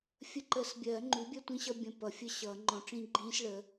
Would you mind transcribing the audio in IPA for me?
fʲ ə˧˥˧ ǃ ə˨˩˦ s bʲ ɜː˨˩˦ ŋ͡ǃ u˩˥ bʲ ɜ˥˧ tʷ ĩ˦˥ ɕ ʌ˧˥˧ bʲ ə̃˧˥˧ p ʌ˩˥ fʲ ə˥˧ ɕ ʌː˨˩˦ ŋ͡ǃ ɔ̃˨˩˦ ʈ͡ʂ ĩ˦˥ ɡ͡ǃ ĩː˦˥ s ɭ ə˩˥

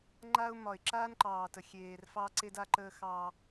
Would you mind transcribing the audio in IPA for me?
ŋ͡ǃ a˦ ʊ̯ m ɒ˨ ɪ̯ ǁ aː˦ n ǃ ɑː˨ t ə˨ xʲ eː˨ r f ɑ˦ ǀ e˦ d a˦ ǃ əː˦ x ɑ˦

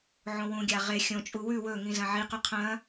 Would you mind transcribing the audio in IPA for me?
ʕ õ w ũ ɡʲ a ʁ e xʲ õ t͡ʃʼ u w ʉ w ɵ ŋ ĩ z ɐ̃ ʕ i q ʉ qʰ ɐ̃

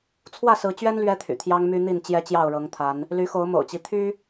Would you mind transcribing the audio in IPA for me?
t͡sʰ w ä˥˨ s ɹ̩˨˦ t͡ɕ ɥ ɛ˦ n l ɥ ɛ˦ t̪ʰ y̰˨˩ t̪ʰ j ɑ˦ ŋ m y˦ n̪ i˥˨ n t͡ɕ j ɛ˦ t͡ɕ j ɑ˥˨ ʊ̯ ɻ ɤ˨˦ ŋ t̪ʰ a˨˦ n | l y˨˦ x o˨˦ ʊ̯ m o̰˨˩ ʊ̯ t͡ɕ i˦ t̪ʰ y˦

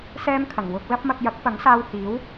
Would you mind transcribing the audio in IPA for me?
s ɛː˥ m kʰ ɐ˨˩ ŋ w ʊ˧ k̚ l ɐ˥ p̚ m ɐ˧ k̚ j ɐ˨˥ k̚ p ɐ˨˥ ŋ s aː˧ w h iː˨˥ w

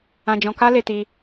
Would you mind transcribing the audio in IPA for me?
ã˧ d͡ʒ ɔ̃˧ k a˦ l e˧ t i˧

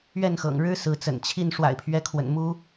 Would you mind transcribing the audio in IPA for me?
ɥ ɛ˥˨ n x ɤ̰˨˩ ŋ ɻ ɻ̩˦ s ɹ̩˨˦ t͡s ə̰˨˩ n t͡ɕʰ i˥˨ n ʂ w a̰˨˩ ɪ̯ pʰ ɥ ɛ˨˦ kʰ w ə̰˨˩ n m u˦

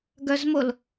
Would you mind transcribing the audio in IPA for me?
ɡ œ z m o l

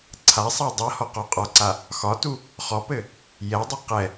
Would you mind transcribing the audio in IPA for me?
ǀʰ a sˤ a dˤ a h ɔ q ɔ qʼ ɒ ǀ a | x ɒ t u | χ ɔ p ɘ | j ɛ dˤ ɘ q ɛ

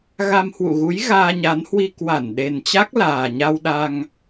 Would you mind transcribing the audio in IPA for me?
ɣ a˧ m h w ṵ˧˨ ɣ u˨˦ j ɣ aː˧ ɲ a˨˦ n h w i˧ k w a˧˩ n ɗ e˨˩ n t͡ɕ a˦˥ k̚ l aː˨˩ ɲ a˧ w ɗ a˧ ŋ

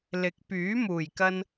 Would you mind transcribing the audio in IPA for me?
l ɪ˨˥ k̚ p yː˨˥ m uː˨˩ j k ɐ˧ n

